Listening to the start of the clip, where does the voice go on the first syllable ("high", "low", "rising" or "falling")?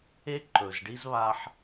high